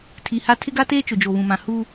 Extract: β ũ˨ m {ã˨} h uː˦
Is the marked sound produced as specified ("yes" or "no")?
yes